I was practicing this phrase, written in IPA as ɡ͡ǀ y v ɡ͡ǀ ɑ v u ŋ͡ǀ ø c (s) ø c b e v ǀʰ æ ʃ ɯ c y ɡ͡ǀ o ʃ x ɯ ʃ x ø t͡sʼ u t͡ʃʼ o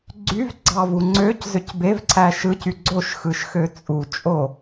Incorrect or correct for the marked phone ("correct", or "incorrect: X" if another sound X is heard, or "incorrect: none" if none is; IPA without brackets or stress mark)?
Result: incorrect: z